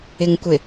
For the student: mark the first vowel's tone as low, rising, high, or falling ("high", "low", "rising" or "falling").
low